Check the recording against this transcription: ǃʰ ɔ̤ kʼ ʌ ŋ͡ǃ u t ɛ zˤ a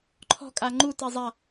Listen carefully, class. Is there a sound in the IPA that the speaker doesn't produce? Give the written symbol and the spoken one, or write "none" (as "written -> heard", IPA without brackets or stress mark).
ʌ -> a